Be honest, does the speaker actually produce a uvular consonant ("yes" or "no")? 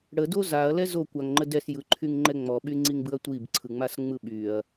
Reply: no